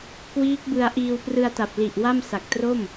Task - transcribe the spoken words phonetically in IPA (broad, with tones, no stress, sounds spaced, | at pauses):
k w iː˦˥ k̚ b ɯ˧ a̯ ʔ iː˧ w p r ɯ˧ a̯ t a˨˩ p̚ l i˨˩ ʔ w a˥˩ m s a˨˩ k̚ t r o˥˩ m